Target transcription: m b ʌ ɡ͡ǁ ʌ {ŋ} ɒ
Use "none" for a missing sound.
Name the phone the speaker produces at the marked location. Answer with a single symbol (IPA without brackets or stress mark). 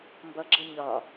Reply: ɲ